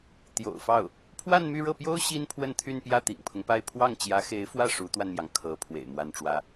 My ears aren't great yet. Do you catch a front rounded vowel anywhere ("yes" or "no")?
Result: yes